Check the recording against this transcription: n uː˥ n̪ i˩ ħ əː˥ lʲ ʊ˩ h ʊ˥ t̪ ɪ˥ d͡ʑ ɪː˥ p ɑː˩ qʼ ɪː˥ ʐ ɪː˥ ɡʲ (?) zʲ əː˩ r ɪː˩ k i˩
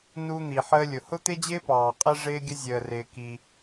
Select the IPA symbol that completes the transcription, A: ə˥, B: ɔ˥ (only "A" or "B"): A